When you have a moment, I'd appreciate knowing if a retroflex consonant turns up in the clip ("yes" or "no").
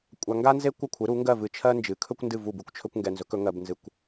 no